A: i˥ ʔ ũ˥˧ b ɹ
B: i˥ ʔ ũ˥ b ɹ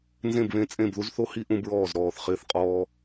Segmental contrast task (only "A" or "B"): B